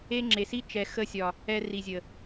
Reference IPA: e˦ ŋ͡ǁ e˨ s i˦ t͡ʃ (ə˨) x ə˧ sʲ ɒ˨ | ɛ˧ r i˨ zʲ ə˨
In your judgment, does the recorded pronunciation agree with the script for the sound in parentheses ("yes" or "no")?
no